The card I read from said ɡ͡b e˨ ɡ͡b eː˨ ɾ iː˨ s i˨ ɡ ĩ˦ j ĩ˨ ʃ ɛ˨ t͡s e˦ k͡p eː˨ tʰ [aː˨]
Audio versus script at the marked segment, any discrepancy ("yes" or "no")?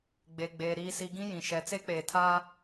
yes